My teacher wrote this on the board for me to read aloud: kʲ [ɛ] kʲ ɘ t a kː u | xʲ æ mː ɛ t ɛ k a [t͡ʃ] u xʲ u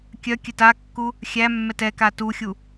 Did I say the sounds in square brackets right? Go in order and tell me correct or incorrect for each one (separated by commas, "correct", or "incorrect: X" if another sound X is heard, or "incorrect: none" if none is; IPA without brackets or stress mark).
incorrect: œ, incorrect: t